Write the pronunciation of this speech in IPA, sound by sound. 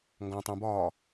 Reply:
ŋ ɡ ɔ̃ tˤ ũ b ɒː

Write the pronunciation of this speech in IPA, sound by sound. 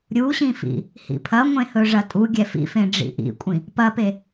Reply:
ɾʲ u ɕ ĩ f ḭ | h ḭ pʰ ɐ ŋʷ ẽ h ɵ ʐ ɐ tʼ u ɡʲ ɛ f ḭ f ẽ ɖ͡ʐ ḭ ʔ ḭ kʷʼ ĩ | p ɐ p e

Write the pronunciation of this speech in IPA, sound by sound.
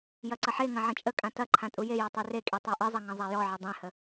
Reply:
j ɐ ǀ ɐ ħ e ŋ ɐ̃ ʕ ə̃ t͡ʃʼ ə kʼ ã t ɐ ǃʰ ã tʼ u j e j ɔ tˤ e r e kʼ i tˤ a ʔ ɨ zˤ ɐ ŋ ɐ̃ zˤ a j ɔ ʕ ə dˤ ẽ h ə

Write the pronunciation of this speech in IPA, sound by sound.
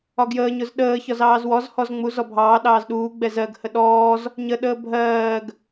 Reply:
ɒ ɡ j əː ɲ ʊ z ɗ əː ç ɒ z ɑː z w ɔ z h ɔ z ŋ͡m u z ɔ bʱ ɑː ɗ ɑː z ɗ uː ɡ͡b ɛ z ɜ ɡ h ə ɗ ɔː z | ɲ ə ɗ əː bʱ ɜː ɡ

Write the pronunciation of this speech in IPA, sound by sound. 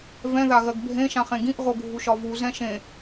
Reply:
v ɛ̃ ð a ɣ ɜ ɡ bʱ ẽ ʃ ã χ ẽ ɡ ĩ ʔ ʁ o ɡʱ u ʃ ɒ v u z ɛ̃ ʃ ẽ

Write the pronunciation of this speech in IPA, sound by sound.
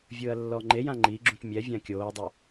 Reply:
vʲ ɯː ɐ̯ lː ɔ ŋ͡ǃ e j ã ŋ͡ǃ i ɡ͡ǁ ũ t mʲ ɛ vʲ ã kʲ oː dˤ o

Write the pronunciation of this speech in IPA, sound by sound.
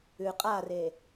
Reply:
ʉ qʼ a r e

